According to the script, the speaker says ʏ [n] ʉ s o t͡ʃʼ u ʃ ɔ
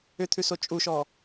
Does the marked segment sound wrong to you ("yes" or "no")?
yes